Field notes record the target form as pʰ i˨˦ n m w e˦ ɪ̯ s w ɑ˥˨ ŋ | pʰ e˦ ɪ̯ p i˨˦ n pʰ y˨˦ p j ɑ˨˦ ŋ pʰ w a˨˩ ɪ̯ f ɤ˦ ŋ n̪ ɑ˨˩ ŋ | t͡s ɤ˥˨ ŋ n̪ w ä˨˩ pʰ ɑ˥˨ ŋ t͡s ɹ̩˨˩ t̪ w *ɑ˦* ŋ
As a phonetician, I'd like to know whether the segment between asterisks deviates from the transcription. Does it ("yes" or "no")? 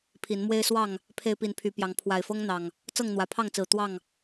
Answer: yes